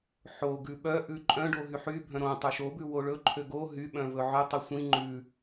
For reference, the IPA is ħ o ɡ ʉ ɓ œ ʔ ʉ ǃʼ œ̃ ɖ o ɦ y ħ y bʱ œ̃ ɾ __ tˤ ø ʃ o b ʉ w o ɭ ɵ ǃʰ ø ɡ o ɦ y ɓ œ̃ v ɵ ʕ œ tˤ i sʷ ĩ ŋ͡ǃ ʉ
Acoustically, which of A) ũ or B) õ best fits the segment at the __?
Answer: B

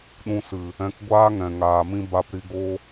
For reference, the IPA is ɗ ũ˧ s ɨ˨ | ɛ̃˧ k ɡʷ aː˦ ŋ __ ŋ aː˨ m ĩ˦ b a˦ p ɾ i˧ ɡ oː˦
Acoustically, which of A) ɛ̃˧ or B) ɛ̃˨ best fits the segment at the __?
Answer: B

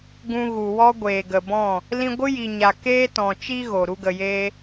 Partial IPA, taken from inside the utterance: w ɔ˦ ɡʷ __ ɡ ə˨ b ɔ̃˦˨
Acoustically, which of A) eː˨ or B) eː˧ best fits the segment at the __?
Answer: A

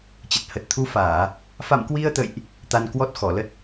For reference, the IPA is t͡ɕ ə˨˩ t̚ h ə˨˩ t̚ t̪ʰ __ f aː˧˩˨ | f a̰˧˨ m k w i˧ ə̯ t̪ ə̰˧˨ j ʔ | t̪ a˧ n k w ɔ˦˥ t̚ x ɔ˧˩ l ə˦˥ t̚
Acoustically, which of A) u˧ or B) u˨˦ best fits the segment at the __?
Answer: B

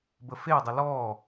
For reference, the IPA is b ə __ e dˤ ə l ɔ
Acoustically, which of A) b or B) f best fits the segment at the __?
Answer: B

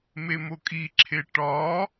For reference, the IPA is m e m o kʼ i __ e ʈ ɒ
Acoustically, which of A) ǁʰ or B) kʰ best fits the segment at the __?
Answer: A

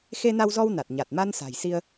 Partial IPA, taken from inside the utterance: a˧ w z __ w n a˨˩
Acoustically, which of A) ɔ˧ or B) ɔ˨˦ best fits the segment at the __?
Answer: A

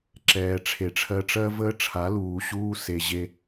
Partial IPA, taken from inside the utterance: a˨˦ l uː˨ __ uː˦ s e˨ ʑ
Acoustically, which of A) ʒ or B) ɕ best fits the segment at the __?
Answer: B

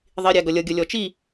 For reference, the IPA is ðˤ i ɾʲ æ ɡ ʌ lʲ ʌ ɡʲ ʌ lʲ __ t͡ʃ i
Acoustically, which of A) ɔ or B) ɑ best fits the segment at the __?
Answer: A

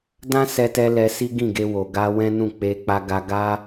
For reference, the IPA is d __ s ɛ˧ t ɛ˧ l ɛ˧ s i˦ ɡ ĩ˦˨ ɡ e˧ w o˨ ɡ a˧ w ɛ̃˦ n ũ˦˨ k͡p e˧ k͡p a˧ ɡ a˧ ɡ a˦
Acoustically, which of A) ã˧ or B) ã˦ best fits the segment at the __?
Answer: B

